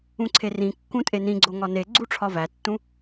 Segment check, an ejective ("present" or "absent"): present